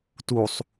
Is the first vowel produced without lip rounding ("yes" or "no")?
no